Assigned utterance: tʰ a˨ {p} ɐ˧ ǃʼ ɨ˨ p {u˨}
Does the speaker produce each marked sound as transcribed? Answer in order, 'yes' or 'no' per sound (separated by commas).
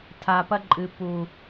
yes, yes